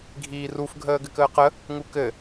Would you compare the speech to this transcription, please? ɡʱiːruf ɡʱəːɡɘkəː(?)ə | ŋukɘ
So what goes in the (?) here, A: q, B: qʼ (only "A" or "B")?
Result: A